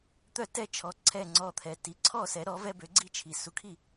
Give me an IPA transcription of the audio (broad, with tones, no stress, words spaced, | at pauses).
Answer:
t̪œ˥˩tɛ˥˩t͡ʃʰɔ˩˥ ǀʰɛ˥˩ŋ͡ǀɔ˧t̪ʰɛ˩ ti˩˥ǀʰɔ˥˩ sɛ˩˥ɾɔ˩˥vɛ˥ bø˩˥ ɡ͡ǀi˥˩t͡ʃʰi˩ su˩˥kʰi˥˩